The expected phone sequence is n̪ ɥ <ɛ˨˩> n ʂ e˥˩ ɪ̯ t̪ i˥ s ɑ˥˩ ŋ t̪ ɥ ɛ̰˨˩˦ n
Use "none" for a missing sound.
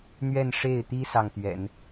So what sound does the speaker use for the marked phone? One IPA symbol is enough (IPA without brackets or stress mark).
ɛ˥˧